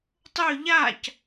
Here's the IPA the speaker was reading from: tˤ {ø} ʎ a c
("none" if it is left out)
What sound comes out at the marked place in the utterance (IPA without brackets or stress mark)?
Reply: ø